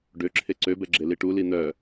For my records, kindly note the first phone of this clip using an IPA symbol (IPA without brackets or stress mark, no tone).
ɖ